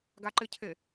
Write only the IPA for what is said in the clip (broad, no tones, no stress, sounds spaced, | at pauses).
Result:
ɡ a ǃ ɪ cʰ e